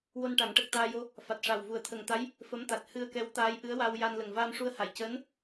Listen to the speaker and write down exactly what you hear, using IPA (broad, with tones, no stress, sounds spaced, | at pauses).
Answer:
w o˧ n ʈ a˨˩˦ ŋ ʈ ə˨˩ k̚ t̪ aː˧ j o˧ | f a˨˩ t̚ ʂ a˨˩ w v u˨˩ ə̯ t̪ʰ ə˨˩ ŋ t̪ a˧˥ j | f ə˧˥ m t̪ a˨˩ t̚ h ɨ˧ ə̯ k ɛ˧˥ w t̪ aː˧˥ j ʔ ɨ˧˥ ə̯ w a˧ w j a˧ n l ə˨˩ ŋ v aː˧ m ʂ u˧ ə̯ h a˨˩˨ j c əː˧˥ n